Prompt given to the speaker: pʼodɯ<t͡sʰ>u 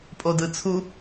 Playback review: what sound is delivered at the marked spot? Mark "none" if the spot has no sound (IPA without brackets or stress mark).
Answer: t͡sʰ